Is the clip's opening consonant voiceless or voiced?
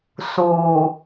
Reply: voiceless